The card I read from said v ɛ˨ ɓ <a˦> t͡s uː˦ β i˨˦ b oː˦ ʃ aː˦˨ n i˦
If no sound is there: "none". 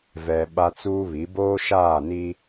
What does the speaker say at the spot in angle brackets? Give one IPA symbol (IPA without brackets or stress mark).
a˦